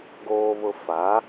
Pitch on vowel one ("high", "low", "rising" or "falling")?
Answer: high